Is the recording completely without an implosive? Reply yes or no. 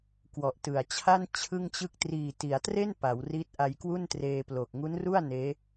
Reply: yes